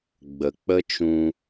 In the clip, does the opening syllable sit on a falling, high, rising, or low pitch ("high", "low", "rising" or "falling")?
low